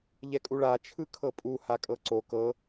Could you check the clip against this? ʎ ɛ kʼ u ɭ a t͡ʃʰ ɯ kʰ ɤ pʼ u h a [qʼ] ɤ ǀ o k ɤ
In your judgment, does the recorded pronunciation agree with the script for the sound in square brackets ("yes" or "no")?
no